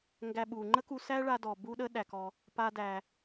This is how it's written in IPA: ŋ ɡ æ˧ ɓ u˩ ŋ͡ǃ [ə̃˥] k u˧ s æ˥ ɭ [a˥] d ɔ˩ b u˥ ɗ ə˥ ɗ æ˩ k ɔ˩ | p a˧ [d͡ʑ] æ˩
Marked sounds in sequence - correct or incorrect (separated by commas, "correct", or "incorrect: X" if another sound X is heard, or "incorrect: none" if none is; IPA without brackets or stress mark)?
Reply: incorrect: ə˥, incorrect: a˧, incorrect: d